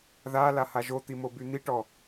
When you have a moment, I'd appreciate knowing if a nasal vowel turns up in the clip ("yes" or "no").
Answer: no